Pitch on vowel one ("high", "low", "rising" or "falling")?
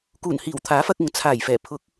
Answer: low